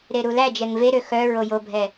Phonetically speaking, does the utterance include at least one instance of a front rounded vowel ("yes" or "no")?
yes